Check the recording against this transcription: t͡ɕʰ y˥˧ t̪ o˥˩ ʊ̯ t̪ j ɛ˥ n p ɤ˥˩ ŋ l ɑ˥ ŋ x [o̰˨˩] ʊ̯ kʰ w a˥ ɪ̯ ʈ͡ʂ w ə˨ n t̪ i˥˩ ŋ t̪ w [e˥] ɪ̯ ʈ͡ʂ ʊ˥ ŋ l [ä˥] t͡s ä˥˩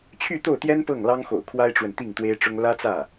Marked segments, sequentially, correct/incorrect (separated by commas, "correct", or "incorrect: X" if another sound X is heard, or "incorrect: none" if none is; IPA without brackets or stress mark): correct, correct, correct